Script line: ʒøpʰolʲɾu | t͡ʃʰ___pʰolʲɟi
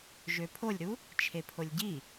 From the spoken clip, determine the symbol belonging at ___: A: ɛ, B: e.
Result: B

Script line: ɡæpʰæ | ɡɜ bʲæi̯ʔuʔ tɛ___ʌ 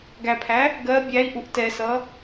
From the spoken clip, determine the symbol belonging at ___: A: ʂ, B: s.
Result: B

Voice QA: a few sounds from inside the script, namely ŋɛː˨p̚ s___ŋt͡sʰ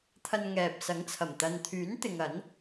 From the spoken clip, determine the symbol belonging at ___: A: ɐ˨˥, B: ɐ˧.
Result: A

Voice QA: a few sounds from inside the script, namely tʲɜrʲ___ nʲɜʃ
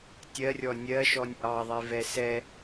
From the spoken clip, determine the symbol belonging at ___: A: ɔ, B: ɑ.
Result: A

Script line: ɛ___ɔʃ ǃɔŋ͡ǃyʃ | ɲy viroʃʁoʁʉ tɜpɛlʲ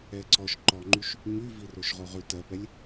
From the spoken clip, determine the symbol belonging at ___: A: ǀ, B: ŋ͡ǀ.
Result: A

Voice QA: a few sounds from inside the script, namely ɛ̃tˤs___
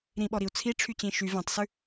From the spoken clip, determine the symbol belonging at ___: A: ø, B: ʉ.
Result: B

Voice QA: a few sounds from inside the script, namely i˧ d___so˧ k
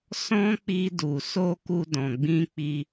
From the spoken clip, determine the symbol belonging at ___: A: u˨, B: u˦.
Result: A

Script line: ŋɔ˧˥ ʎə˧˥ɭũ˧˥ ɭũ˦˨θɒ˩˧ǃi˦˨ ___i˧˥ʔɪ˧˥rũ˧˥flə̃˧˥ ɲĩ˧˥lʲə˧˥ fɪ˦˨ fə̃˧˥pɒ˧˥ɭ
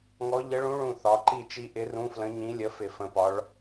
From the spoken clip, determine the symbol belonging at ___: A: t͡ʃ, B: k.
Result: A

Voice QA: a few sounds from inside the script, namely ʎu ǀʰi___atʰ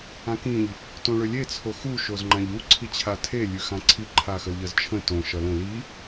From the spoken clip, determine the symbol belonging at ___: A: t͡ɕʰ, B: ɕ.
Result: A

